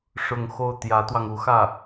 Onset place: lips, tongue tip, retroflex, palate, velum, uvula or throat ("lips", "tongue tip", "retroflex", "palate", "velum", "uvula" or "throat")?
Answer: retroflex